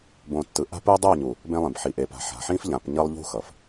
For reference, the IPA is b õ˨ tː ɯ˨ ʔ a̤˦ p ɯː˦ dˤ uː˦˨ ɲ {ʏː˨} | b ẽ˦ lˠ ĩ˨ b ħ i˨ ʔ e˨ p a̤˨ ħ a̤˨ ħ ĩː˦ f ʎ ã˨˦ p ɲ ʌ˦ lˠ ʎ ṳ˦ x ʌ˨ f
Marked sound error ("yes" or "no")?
yes